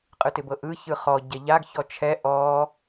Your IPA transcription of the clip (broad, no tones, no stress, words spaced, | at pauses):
qʼɯtɪbɤʔɯ çɯχɔ ɟɛʎaɡ çɔt͡ʃʰɛ ʔɔ